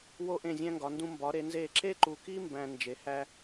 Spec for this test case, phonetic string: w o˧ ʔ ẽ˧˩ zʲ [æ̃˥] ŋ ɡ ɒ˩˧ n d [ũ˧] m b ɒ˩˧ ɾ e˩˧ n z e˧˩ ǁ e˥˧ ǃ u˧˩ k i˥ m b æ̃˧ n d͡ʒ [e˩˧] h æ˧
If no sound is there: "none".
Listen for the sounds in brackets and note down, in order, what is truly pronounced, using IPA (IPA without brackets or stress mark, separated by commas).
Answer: æ̃˧, ũ˧, e˩˧